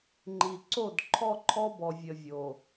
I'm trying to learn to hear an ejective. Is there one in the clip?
no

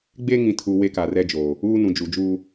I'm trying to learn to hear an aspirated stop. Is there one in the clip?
yes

